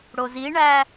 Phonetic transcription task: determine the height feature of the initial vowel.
mid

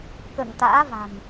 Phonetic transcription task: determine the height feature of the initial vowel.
mid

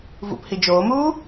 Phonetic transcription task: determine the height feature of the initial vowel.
high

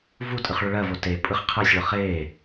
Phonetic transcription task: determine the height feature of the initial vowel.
high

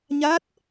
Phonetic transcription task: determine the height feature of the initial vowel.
low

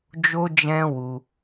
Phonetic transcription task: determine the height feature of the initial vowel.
mid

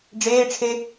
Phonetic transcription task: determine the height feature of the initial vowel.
mid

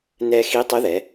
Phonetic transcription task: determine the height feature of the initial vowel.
mid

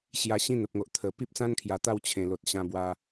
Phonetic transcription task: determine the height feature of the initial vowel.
low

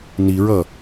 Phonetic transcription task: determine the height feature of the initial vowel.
high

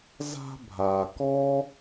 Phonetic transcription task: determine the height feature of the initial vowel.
low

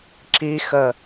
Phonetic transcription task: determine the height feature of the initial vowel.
high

